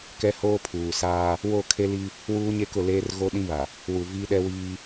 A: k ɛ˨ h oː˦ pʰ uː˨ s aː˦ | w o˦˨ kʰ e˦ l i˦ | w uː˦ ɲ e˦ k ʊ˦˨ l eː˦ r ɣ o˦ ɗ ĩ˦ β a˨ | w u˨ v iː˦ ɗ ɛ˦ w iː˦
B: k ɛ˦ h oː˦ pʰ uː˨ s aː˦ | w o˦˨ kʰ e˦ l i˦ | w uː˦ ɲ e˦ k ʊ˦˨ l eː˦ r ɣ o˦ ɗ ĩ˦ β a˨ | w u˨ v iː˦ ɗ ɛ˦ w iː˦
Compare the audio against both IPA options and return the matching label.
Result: B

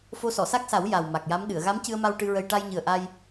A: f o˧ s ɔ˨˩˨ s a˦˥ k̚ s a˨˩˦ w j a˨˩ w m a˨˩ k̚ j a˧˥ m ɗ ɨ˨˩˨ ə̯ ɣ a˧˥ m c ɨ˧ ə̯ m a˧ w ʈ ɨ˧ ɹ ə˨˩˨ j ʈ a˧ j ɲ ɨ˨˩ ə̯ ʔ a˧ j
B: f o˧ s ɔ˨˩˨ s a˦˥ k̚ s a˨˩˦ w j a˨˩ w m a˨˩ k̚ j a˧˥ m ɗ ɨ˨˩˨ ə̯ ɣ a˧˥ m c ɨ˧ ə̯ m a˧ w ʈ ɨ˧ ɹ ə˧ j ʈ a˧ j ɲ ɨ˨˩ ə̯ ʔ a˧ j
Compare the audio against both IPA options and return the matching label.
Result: B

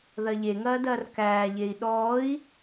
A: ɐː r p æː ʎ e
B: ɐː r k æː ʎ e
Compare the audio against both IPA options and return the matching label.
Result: B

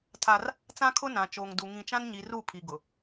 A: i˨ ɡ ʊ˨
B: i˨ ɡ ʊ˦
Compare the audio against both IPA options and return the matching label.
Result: A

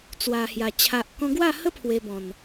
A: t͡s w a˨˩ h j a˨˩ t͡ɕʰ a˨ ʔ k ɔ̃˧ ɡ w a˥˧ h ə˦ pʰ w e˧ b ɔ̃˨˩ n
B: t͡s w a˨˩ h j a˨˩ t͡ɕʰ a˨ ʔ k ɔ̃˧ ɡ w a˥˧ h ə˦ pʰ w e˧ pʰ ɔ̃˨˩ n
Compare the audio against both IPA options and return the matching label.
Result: A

